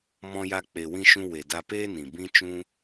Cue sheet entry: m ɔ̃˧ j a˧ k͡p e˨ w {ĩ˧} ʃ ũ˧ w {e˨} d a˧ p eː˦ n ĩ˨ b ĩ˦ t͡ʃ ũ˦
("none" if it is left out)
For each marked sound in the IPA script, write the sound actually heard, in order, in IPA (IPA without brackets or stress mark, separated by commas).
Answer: ĩ˧, e˨